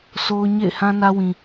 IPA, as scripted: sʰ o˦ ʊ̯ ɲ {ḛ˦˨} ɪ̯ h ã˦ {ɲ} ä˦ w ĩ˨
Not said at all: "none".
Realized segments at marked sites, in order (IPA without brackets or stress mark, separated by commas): ḛ˦˨, n